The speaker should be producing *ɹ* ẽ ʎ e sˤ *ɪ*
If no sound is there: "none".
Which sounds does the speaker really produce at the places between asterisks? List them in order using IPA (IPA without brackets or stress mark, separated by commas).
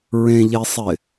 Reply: ɹ, ɪ